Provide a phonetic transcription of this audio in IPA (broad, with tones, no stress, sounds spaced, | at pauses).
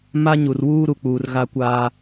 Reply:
m a˦ ɲ u˨ r w uː˦ ɾ u˨ k͡p uː˨ r ɣ a˦ kʷ aː˦